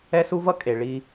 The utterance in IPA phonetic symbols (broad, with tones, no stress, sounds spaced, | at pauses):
ɛ˦ s u˦ v ʌ˦ kʼ e˨ ɭ i˦